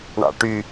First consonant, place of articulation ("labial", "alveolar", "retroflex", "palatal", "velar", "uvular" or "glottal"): retroflex